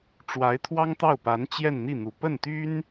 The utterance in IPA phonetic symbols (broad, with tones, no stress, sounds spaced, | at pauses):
ʈ͡ʂ w a˧˥ ɪ̯ t̪ʰ w ɑ˥ ŋ t̪ ɑ˥˩ ʊ̯ p a˧˥ n t͡ɕ j ɛ˥˧ n n̪ i˥˩ n̪ u˨˩ p ə˥˩ n t̪ y˥ n